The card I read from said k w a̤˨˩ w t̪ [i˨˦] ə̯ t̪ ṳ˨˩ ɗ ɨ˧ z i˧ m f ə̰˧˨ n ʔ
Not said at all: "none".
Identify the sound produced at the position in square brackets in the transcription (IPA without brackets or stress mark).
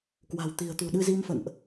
i̤˨˩